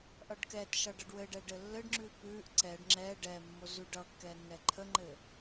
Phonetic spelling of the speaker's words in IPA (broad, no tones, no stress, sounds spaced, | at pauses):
ʔ ʌ ɖ k ɛ t ʃ ʌ ɖ ʌ ɖ w ɘ ɖ ɛ ɖ ɘ lː ɘ ɖ ŋ͡ǁ ʉ p ʉ ʔ ǀ ɛ ɖ ŋ͡ǁ ɛ ɖ ɛ mː o z ʉ ɖ ʌ kː ɛ nː ɛ ǃʰ ə ŋ͡ǃ ɘ